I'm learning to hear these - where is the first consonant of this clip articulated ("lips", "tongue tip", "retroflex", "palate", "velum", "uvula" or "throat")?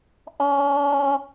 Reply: throat